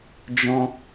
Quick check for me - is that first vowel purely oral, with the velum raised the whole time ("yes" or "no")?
no